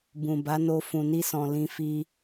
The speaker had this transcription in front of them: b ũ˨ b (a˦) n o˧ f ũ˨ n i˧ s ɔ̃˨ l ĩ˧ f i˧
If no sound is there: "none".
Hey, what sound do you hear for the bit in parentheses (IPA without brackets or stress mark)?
a˨˦